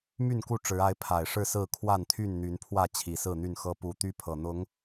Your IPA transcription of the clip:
m y˥˨ n k u˥˨ ʈ͡ʂ ɻ̩˨˦ a˨˦ ɪ̯ pʰ a˨˩ ɪ̯ ʂ ɻ̩˥˨ s ɹ̩˥˨ kʰ w a˥˨ n t̪ʰ y˥˨ n n̪ y˨˦ n pʰ w ä˥˨ t͡ɕʰ i˨˩ s ɹ̩˥˨ n̪ y˥˨ n x ɤ˦ p u˦ t̪ y˦ pʰ ɤ˨˩ n̪ ʊ˨˦ ŋ

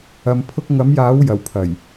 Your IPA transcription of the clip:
ɐ˧ m pʰ ʊ˥ k̚ ŋ ɐ˨˥ m j aː˨˥ w j ɐ˨˩ w pʰ ɐ˨˩ j

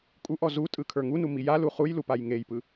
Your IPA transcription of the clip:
kʼ u ʔ ɔ z u tʼ ɯ kʰ ə˞ ŋ u n u m i j a l u χ u j l u p a j ŋ e j p ɯ

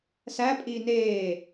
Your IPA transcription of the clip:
s æ pʼ iː n eː

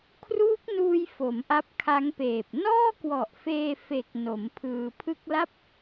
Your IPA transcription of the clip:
kʰ r uː˦˥ k̚ n uː˧ j f o˩˦ m ʔ a˦˥ p̚ kʰ a˦˥ ŋ p eː˨˩ p̚ n ɔː˥˩ k w ɔ˨˩ ʔ f eː˧ f e˨˩ k̚ n o˩˦ m pʰ ɯː˧ pʰ ɯ˦˥ k̚ l a˥˩ p̚

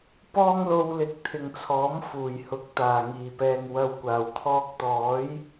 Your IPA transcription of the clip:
p ɔː˥ ŋ l o˧ w l ɪ˨˥ k̚ t̪ʰ ɪ˨ ŋ t͡sʰ ɔː˨˥ m f uː˨˩ j h ʊ˨˥ k̚ t̪ aː˨˩ ŋ iː˨˩ p ɛː˨ ŋ w ɐ˨ w kʷ aː˨˩ w t̪ʰ ɔː˧ k̚ t̪ ɔː˨˥ j

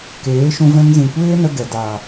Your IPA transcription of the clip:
k eː˨˦ ʃ ũ˧ v ɛ̃˧ ŋ z ĩ˨ kʷ eː˦ n ə˧ ɡ ɛ˨ d aː˨

